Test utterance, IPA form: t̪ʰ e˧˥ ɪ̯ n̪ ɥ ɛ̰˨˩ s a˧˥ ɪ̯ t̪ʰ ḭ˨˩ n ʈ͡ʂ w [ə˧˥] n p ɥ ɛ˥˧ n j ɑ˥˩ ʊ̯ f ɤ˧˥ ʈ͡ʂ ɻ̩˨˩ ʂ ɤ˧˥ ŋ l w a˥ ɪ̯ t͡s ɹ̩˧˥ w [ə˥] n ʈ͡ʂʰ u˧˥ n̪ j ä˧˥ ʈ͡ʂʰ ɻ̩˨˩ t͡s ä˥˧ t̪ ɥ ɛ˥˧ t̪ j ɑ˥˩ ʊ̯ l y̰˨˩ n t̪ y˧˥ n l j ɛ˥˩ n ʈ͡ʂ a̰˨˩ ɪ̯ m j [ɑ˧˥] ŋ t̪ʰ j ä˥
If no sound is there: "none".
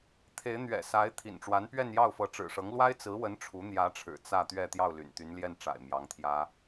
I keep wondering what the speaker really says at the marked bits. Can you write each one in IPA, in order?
a˧˥, ə˧˥, ɑ˧˥

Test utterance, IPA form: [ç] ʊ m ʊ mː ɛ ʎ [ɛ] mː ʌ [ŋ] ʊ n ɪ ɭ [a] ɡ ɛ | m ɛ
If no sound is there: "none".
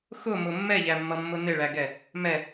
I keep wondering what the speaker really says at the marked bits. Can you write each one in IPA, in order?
x, æ, mː, æ

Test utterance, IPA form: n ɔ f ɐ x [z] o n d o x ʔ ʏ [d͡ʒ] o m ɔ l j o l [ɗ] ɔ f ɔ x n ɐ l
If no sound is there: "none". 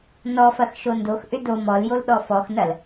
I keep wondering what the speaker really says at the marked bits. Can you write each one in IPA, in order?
ʃ, d, ɗ

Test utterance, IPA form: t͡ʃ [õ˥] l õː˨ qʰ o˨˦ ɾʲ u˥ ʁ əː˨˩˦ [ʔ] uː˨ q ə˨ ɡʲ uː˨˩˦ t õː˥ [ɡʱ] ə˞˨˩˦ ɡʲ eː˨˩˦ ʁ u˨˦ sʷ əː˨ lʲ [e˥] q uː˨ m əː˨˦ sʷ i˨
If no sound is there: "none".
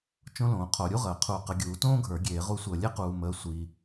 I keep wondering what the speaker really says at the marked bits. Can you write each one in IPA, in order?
õ˥, qʰ, ɡʱ, e˥

